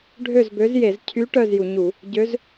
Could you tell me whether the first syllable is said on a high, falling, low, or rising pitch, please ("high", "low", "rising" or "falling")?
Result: falling